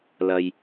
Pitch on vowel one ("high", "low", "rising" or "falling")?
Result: low